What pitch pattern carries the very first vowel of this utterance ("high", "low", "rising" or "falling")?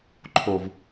low